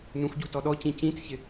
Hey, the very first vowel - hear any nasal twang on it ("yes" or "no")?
yes